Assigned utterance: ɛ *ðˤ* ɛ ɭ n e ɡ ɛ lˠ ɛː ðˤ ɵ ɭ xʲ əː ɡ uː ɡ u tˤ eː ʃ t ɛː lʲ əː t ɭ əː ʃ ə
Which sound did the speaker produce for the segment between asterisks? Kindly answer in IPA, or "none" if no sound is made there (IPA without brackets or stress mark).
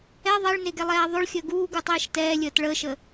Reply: ðˤ